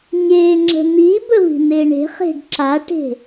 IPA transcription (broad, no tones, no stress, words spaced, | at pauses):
ɲe ŋ͡ǁə̤n̪ibə vi̤n̪eɳe̤χe̤ɖ ǁaʈe̤